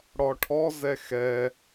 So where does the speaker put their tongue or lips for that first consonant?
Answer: retroflex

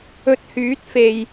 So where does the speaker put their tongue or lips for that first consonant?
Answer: tongue tip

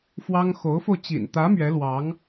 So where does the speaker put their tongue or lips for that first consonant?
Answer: lips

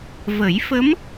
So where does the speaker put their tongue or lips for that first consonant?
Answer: lips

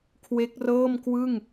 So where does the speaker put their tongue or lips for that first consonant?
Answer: velum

